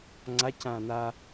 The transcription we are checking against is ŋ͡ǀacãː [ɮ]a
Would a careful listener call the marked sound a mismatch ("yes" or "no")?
yes